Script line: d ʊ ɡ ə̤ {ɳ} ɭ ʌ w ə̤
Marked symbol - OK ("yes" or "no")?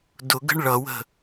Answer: yes